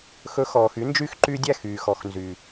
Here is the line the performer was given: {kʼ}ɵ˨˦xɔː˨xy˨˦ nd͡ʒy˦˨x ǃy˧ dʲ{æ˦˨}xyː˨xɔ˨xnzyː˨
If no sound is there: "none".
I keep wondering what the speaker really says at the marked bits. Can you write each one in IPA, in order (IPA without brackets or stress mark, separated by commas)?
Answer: x, æ˦˨